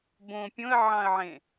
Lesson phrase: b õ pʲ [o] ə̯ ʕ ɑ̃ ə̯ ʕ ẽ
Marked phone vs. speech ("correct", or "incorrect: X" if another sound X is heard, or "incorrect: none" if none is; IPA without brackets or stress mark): incorrect: õ